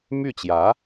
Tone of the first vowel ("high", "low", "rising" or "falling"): falling